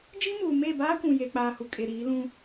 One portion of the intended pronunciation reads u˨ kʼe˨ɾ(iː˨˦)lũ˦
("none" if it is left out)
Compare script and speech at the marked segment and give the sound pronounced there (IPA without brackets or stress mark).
iː˨˦